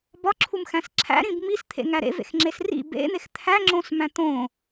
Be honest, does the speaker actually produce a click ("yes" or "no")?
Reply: yes